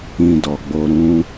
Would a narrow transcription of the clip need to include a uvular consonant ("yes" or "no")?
no